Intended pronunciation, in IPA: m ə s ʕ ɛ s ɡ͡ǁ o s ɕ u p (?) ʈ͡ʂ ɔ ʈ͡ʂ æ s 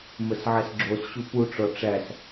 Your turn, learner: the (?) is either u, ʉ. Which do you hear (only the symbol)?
u